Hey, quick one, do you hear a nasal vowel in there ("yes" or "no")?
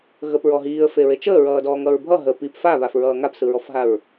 no